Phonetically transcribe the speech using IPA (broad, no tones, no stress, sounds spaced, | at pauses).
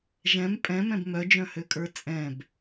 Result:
ʒ ɛ̃ m pʼ ɛ̃ m ɛ̃ b m œ d͡ʒ œ̃ h ø kʼ ə˞ t͡sʼ ɛ̃ b